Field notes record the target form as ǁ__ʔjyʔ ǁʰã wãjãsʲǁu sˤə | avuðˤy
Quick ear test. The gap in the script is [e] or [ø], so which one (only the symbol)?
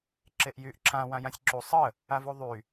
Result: e